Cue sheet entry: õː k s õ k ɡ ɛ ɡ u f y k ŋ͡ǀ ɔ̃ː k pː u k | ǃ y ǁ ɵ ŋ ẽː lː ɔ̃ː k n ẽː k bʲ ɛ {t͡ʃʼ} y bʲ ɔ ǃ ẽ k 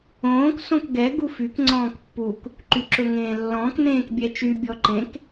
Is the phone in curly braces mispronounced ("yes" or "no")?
yes